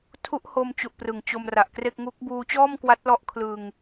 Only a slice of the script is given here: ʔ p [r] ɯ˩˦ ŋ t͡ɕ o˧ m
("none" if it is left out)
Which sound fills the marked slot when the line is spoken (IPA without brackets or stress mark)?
r